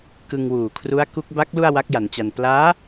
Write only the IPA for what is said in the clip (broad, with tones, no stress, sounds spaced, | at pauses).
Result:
k ɯ˧ ŋ w uː˨˩ kʰ r u˦˥ a̯ k u˦˥ k̚ b a˦˥ k̚ l u˥˩ a̯ w a˦˥ k̚ j a˩˦ n t͡ɕ a˧ n p l aː˦˥